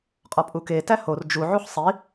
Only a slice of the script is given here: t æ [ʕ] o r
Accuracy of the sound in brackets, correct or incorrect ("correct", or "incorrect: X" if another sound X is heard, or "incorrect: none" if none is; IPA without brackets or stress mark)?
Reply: incorrect: h